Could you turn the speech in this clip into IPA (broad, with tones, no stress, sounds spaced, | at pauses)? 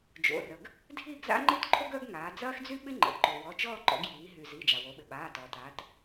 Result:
d͡ʒ o̰˩˧˩ r ə˩ ɡ | dʱ iː˥˧ ɡ z a̰˥ ŋ͡ǃ i˥ t ǃʰ o˥ ɡ œ˥ ɡ ŋ aː˩˧ d͡z ɐː˥ x d͡z y˥ ɓ ɪ˥ ŋ͡ǃ ə̰˩˧˩ ǃ o˩ w ɔ˩˧˩ t͡ʃ ɔː˥˧ ǃ ɔ̰˩˧ ɡ j iː˩˧ ɦ y˩ z iː˩˧˩ d͡ʒ a˩ w o˩˧ ɓ ɪ˩ ɓ aː˩˧˩ t ɔː˩ t aː˩˧ t